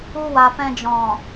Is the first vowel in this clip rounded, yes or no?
yes